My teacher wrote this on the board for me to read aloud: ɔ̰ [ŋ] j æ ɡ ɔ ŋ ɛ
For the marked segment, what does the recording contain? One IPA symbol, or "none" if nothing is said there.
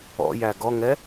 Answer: none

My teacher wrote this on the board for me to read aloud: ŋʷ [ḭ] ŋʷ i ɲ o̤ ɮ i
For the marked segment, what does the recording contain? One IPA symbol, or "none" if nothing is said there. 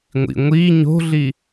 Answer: ḭ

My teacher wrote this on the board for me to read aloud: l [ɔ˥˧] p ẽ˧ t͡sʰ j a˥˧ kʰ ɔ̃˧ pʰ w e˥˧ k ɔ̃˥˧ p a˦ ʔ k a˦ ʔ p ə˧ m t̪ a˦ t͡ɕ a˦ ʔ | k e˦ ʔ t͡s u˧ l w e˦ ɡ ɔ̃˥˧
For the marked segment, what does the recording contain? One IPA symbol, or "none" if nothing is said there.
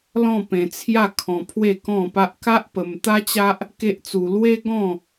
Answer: ɔ̃˥˧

